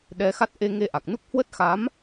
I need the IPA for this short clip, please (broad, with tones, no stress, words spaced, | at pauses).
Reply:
ɗɛ˧xa˦˥t̚ ʔe˧ŋe˧ʔa˨˩k̚nu˦˥k̚ hwə˦˥t̚xa˨˦m